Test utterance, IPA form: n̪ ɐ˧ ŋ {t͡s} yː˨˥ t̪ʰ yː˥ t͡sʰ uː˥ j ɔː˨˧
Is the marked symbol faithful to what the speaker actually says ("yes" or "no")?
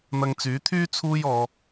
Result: yes